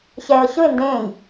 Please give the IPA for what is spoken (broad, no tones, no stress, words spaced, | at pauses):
çɛːə̯çɯɪ̯ ndẽːj